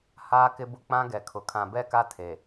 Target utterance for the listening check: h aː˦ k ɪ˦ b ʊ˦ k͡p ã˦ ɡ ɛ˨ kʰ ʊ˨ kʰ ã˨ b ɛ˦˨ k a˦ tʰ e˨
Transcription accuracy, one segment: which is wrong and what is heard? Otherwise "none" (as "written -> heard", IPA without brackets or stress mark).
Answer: none